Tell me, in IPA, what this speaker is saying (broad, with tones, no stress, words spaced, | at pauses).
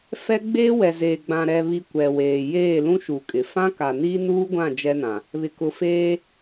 fɛ˦ɡ͡beː˦wɛ˨ zeː˨ɡ͡bã˨ ɾɛ˨βi˨ kʷɛ˨weː˨ jeː˦˨lũ˦ʃu˨kʼɪ˨ fã˦ka˨niː˦ nuː˦ɡʷã˦˨ d͡ʒɛ˦nã˨ | βɪ˨kʊ˨feː˦